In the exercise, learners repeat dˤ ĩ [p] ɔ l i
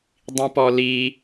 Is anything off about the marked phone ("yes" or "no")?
no